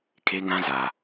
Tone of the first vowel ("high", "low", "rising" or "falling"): high